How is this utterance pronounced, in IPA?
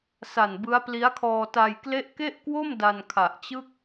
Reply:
sa˨˩nbɯ˦˥a̯pli˦˥a̯kʰɔː˧ ta˧jkle˥˩ʔ ke˥˩ʔkwo˥˩m da˧nkʰa˨˩ʔt͡ɕɯ˥˩k̚

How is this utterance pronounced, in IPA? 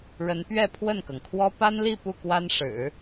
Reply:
ɻə˧˥npɥɛ˥˧ pʰwə˥˩nkɤ˩ŋkʰwɔ˥ pa˥nli˥˧ pu˥˩kwa˥nʂɻ̩˨˩˦

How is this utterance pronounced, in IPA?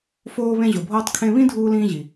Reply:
foː˧βẽ˧ʑo˩bʱoː˧tˤ kʰẽ˧βĩ˥dʱuː˧lĩː˧ ʑi˩

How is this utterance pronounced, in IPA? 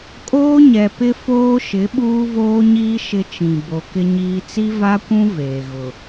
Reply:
kʼoː˦ɲɛ˨pɪ˦ foː˦ʃɪ˨˦ ɓuː˦voː˦ɲiː˦ ʃɪ˦t͡ʃĩ˨ bo˨kɪ˦ɲiː˦ t͡si˦va˦kʷũ˦ veː˨ɣʊ˨

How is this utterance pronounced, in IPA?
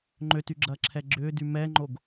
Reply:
ŋ͡ǃøtyɡ͡ǁɐːǁʰɛ ɡ͡ǁʏːdy mɛŋ͡ǃoɡ

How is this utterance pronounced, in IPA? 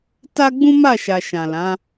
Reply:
ta˦ ɡ͡bũ˦ma˦˨ʃa˨ ʃã˨lã˨˦

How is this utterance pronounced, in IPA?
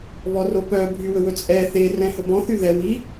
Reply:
βɔropœ bʱywɵwɵt͡sʼɛ θerɛ̃ hɵbɔ̃θy ðɛ wi

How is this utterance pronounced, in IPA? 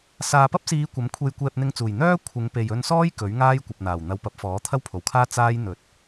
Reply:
saː˨pɐ˥p̚siː˨˧ kʷɐ˨˥mkʷʰe˧j kʷɛː˧p̚n̪ɪ˧ŋt͡suː˨˩j n̪œː˥ kʷʰɪ˨˧ŋpe˨j ɵ˧nsɔː˥j kɵ˨˥ɥŋaː˥j kʷɐ˨p̚n̪aː˨˩w n̪ɐ˨˧wpɐ˨˥p̚fɔː˨˥ t̪ʰɐ˥wpʰo˨˩wkʰaː˥ t͡saː˥j n̪ɵ˨˥t̚

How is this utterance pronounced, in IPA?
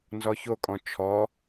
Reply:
nzɔçokʼɔ̃ t͡ʃʰɔ

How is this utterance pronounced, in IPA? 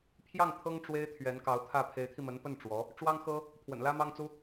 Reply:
pʰjɑ˥˩ŋ t̪ʰɤ˥ŋ ʈ͡ʂwe˥ɪ̯t̪ʰɥɛ˧˥nkɑ˧˥ʊ̯t̪ʰä˥˩ pʰe˧˥ɪ̯t̪ʰi˧mə˧˥npə˥˩n ʈ͡ʂwɔ˧˥ | ʈ͡ʂwɑ˥ŋxɤ˥ | pʰwə̰˨˩nlä˥mɑ˥ŋt͡su˥

